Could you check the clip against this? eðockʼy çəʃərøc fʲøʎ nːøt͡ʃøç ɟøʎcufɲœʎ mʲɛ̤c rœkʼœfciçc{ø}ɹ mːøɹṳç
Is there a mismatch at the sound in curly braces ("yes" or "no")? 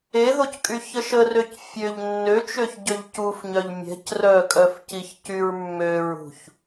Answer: yes